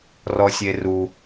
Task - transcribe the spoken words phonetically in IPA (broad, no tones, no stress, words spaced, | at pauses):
rɔsʲeru